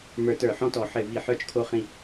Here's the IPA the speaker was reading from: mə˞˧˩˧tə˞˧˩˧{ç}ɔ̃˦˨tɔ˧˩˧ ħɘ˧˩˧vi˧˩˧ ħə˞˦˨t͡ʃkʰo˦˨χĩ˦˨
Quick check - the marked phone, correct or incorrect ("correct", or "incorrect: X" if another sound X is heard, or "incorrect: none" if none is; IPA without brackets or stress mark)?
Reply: incorrect: ħ